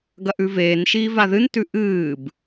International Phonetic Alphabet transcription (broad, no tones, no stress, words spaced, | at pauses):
ɡɐʔʉveːnʃiː vaðɨntʉ ʔɨːb